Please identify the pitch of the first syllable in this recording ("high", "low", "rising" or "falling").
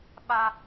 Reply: high